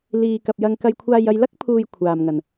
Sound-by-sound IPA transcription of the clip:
l iː˨ k ɐ˨ p̚ j ɐ˧ ŋ k ɐ˧ j kʷʰ aː˧ j ɐ˧ j l ɐ˥ k̚ pʰ uː˨ j kʷʰ aː˨ m ŋ ɐ˨ n

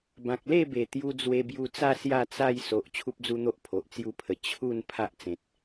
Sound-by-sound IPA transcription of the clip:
b ã˨ k̚ l e˥˧ b e˨˩ t̪ j u˧ d͡z w e˧ b j u˧ t͡s a˥˧ s j a˥˧ t͡s a˥˧ j s o˨ ʔ t͡ɕʰ u˦ p̚ d͡z u˦ n̪ o˦ ʔ pʰ o˨ ʔ t͡s j u˦ pʰ ə˨˩ t͡ɕʰ u˥˧ n pʰ a˦ ʔ t͡s ẽ˨ t̚

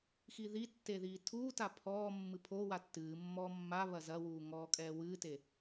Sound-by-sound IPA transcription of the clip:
x i ð i tː e ð iː tʰ uː t a pʰ ɔː mː ɨ pʰ o w a tː ɨː mː ɔː mː a β ɐ z ɐ w uː ŋ ɔː kʼ ɛː w ɨː t e

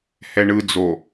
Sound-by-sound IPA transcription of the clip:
h ɛ ɳ ɯ d͡z o

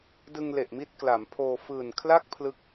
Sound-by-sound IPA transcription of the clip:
d ɯ˧ ŋ l e˨˩ ʔ m i˥˩ t̚ k l a˩˦ m pʰ oː˧ f ɯː˨˩ n kʰ l a˥˩ k̚ pʰ l ɯ˥˩ k̚

